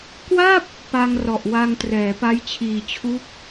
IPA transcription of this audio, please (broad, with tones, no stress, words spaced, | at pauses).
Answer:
kwa˥˩p̚ | pa˧ŋrɔ˨˩ʔwa˧ŋtrɛː˩˦ pa˦˥jt͡ɕʰiː˨˩t͡ɕʰu˦˥k̚